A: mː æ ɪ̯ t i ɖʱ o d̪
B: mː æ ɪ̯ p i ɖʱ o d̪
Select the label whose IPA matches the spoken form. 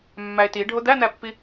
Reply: A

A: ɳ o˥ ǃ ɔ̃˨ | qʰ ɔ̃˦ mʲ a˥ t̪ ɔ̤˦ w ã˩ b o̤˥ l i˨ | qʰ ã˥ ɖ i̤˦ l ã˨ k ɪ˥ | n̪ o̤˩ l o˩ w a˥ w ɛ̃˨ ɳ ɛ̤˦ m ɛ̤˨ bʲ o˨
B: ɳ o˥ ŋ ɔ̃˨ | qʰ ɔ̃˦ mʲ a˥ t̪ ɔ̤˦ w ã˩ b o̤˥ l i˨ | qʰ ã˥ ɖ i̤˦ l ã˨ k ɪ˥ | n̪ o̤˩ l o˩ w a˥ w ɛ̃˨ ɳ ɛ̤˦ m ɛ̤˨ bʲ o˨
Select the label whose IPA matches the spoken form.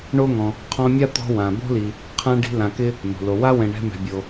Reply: B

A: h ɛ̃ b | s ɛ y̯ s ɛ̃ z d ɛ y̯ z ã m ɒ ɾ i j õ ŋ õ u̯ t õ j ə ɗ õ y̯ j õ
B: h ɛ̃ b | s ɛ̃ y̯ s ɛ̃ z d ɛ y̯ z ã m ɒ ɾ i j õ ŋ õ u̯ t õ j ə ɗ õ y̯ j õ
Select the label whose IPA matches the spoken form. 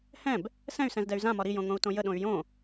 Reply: B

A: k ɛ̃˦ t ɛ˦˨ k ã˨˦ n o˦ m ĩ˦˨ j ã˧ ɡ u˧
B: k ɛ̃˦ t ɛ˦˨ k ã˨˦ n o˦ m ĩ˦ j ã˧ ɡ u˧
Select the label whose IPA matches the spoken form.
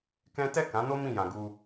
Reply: A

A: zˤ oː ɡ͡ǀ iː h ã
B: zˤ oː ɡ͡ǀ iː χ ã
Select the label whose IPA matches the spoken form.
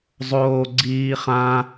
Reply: B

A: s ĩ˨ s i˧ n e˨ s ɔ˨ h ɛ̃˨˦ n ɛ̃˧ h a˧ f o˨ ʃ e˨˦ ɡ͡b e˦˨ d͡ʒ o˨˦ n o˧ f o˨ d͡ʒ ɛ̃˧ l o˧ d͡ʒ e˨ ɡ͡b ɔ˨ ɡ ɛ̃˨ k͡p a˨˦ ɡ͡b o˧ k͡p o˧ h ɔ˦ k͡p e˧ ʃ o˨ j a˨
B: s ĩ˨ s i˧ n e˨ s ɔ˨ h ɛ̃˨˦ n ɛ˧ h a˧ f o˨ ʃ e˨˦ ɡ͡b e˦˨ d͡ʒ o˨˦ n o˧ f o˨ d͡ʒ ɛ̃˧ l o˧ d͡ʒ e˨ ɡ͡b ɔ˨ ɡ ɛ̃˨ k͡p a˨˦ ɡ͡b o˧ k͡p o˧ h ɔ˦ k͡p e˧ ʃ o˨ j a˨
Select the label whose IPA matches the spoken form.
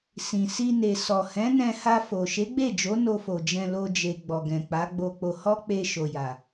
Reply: A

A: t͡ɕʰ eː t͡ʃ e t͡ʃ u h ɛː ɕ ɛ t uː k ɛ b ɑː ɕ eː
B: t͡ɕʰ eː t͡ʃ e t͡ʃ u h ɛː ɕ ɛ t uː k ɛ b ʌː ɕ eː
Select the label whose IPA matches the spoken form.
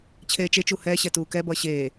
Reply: B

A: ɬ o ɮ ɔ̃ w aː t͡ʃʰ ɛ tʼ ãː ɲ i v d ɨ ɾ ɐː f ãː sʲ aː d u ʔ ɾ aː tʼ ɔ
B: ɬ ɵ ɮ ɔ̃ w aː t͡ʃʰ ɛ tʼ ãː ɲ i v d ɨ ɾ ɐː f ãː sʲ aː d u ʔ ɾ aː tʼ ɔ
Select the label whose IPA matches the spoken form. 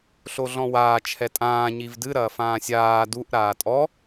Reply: A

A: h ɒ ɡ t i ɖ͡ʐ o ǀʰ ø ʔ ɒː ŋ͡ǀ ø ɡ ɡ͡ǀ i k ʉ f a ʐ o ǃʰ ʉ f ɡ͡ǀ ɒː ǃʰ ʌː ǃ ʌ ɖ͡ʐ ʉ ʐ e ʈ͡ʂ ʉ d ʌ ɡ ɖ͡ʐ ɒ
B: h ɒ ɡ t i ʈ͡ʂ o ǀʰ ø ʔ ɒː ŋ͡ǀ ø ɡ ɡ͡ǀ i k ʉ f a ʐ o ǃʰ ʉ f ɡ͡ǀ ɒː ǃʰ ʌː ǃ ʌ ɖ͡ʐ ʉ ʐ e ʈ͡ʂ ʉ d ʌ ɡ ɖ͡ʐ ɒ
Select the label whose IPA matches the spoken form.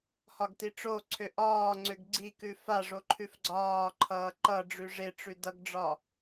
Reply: B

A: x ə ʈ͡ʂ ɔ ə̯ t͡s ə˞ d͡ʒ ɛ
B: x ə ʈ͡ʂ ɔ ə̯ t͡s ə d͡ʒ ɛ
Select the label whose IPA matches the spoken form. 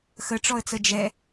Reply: B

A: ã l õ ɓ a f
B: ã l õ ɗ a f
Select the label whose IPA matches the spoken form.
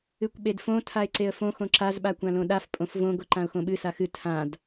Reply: B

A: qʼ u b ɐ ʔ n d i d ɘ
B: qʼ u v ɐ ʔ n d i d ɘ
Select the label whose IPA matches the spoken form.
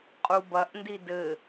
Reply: A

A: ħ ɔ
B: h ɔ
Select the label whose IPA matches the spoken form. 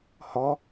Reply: B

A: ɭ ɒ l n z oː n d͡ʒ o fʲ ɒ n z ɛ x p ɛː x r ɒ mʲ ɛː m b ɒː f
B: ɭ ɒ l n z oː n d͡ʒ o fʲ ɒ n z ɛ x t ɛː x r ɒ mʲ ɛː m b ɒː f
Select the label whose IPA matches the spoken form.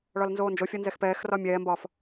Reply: A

